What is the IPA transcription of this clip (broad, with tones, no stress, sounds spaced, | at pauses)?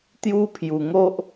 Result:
t̪ j u˦ pʰ j u˨˩ ŋ o˦ ʔ